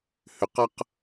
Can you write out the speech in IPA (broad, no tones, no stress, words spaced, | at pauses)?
hʏqʌq